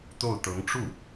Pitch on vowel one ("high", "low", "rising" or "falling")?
falling